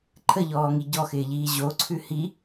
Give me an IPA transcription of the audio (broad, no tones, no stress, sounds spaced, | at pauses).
ǃʰ ə ʎ ɔː ŋ i ɟ ɔ x ɪː ʎ iː ʑ o ǀʰ ʉ h i